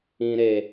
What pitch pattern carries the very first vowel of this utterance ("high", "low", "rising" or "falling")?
low